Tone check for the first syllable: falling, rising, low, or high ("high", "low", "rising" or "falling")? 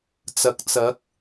rising